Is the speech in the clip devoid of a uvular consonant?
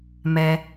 yes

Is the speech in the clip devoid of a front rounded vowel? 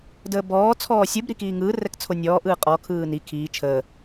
yes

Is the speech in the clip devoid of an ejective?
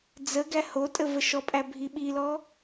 no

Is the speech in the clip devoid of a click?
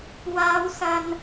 yes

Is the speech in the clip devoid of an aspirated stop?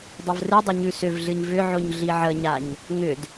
yes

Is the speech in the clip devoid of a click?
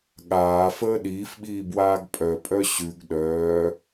yes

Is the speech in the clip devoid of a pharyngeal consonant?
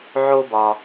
no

